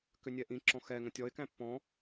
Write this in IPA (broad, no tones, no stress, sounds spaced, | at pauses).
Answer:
k ʏ nʲ ɛ ʔ ĩ ǁ ɔ̃ x ɛ ŋ ə̃ tʲ ɔ ɪ̯ k æ̃ pː ɔ̃